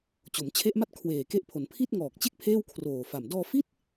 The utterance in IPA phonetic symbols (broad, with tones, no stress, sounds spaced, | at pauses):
t͡ɕ o˩˦ m t͡ɕʰ e˦˥ ʔ m a˥˩ t̚ kʰ w eː˨˩ k e˦˥ ʔ pʰ o˩˦ n pʰ i˥˩ t̚ ŋ ɔː˨˩ k̚ t͡ɕ e˥˩ k̚ pʰ eː˥˩ w kʰ r oː˨˩ f a˨˩ m d ɔː˧ f i˥˩ t̚